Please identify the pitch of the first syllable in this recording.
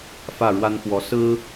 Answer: falling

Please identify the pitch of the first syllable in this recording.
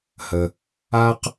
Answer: low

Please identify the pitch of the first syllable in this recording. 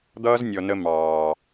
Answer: high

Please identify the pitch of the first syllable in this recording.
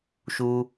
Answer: high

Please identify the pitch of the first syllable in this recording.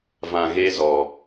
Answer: low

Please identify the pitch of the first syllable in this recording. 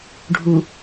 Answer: low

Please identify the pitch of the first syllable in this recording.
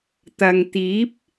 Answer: low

